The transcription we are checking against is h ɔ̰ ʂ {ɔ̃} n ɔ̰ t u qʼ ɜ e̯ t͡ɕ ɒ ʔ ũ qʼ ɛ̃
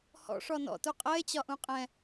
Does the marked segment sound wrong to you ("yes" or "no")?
yes